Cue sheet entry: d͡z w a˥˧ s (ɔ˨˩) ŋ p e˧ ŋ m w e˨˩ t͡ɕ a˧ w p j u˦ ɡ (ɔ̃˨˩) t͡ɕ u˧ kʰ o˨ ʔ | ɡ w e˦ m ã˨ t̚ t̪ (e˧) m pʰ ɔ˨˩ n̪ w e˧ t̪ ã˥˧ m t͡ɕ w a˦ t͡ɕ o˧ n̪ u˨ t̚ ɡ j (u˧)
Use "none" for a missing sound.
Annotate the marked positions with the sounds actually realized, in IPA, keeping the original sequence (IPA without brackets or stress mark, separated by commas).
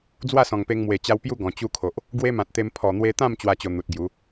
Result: ɔ̃˨˩, ɔ̃˨˩, e˧, u˨˦